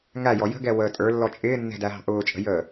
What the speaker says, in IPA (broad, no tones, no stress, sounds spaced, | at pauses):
ŋ æ j ɔ j ə̤ ɡ ɛ w əː tʼ ə˞ lː ɔ t͡ʃʼ ɪː nː ɛ̤ d æ ɦ ɑ̤ ʔ ʊː t͡ʃʼ ə̤ j əː